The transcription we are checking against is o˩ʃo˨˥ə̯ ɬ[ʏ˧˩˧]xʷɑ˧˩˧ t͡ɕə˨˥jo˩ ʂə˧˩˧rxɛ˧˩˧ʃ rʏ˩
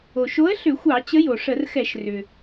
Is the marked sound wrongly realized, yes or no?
no